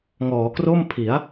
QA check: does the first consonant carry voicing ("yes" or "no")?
yes